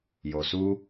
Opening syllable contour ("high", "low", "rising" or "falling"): low